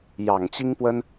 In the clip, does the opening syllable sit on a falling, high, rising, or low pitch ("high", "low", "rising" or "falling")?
low